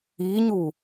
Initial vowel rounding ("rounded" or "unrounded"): unrounded